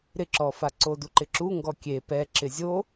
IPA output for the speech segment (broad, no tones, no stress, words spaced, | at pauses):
ɾɪǁɔfa ǀoduǃɪǁu ŋɡɔkʲe pɛ ǁɪzʲo